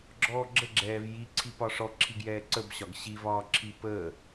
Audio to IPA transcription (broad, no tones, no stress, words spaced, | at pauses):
ɡ͡ǁɔːɡ͡ǁə ɡ͡ǁɛːvji ǀʰipɒʂɔ ǁʰiɡjɛːǀəbɕɒɡ ɕivɒːǁʰi pə